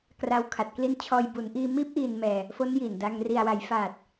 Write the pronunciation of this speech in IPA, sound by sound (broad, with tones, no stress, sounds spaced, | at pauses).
k r a˧ w kʰ a˨˩ t̚ k l i˦˥ n t͡ɕʰ ɔː˧ j b u˩˦ n ʔ iː˧ m iː˦˥ p̚ ʔ iː˨˩ n m ɛː˨˩ | f o˦˥ n j i˨˩ n d a˧ ŋ r i˨˩ a̯ w a˩˦ j f aː˨˩ t̚